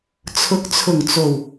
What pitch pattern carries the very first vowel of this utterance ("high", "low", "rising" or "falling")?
rising